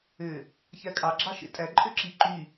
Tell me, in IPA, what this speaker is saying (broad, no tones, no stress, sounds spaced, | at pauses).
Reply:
ø | ç æ kʼ ɑ ɡ͡ǁ ɑ ʃ ḛ tʼ æ ǃʼ ø ǁ i ǃ y